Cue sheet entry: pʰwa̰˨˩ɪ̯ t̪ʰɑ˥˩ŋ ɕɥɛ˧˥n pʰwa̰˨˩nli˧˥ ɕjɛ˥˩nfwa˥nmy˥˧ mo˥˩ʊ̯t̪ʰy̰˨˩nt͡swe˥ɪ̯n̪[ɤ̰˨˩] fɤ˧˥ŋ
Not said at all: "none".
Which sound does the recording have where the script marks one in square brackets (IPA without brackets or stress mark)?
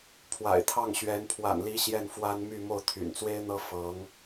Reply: ɤ˥